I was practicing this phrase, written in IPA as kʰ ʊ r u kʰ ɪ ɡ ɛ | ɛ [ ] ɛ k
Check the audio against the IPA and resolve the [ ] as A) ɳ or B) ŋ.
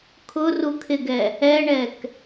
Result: A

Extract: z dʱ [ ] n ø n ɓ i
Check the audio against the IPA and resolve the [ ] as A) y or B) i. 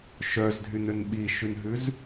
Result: A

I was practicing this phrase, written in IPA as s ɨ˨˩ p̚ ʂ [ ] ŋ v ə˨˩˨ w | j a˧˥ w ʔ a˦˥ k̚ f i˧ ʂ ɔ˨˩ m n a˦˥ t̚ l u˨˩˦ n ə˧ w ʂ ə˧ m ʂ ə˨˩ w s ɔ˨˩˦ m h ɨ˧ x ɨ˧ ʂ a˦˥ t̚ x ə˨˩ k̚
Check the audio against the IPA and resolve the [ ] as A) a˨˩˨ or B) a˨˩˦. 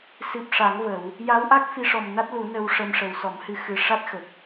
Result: B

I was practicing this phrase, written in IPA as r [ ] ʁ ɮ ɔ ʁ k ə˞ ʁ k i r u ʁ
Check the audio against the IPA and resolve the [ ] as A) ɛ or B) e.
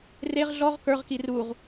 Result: B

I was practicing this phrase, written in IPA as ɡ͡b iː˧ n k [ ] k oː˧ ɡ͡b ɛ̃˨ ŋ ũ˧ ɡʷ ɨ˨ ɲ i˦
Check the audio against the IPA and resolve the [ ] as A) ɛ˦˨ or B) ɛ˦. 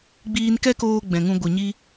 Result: B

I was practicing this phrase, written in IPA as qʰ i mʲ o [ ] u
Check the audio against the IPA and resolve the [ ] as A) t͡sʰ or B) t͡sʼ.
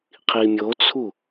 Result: A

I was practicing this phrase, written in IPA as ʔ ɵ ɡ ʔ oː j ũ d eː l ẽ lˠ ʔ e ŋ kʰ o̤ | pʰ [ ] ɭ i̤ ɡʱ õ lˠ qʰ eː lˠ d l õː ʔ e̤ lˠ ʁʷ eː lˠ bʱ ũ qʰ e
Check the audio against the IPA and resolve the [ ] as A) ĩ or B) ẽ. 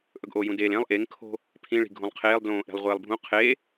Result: A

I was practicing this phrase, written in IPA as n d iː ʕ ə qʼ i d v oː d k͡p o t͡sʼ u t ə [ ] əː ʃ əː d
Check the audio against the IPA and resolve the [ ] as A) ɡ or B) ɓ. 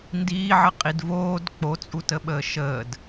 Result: B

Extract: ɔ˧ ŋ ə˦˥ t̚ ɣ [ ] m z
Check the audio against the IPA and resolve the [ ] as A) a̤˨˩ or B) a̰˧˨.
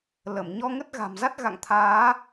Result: A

